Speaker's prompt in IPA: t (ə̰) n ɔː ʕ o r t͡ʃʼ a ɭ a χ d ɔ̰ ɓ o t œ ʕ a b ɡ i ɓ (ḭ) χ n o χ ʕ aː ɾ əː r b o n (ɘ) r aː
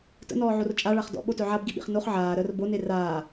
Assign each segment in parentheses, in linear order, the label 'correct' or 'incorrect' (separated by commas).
correct, correct, incorrect